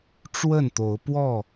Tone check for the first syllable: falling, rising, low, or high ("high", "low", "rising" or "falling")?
falling